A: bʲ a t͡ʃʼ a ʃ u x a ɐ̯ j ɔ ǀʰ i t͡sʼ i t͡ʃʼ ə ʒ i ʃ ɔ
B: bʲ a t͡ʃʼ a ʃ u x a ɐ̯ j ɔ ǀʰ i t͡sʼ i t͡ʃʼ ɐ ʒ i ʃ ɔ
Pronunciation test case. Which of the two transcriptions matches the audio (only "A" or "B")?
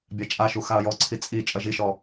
B